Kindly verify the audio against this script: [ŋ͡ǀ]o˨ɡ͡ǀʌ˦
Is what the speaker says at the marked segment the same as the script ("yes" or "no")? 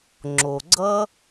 no